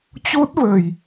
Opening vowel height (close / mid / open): mid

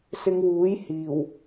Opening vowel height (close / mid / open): close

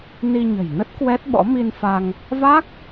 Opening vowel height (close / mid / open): close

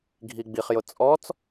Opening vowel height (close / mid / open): close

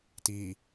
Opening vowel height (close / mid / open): close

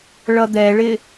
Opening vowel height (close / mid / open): mid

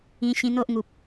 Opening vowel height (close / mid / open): close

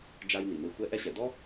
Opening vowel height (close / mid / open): open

